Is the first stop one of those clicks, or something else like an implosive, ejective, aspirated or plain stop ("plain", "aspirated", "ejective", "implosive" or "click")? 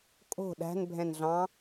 ejective